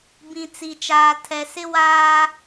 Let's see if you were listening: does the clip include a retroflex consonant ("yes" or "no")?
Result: no